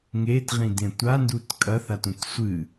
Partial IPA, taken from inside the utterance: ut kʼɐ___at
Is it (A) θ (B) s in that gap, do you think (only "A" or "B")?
A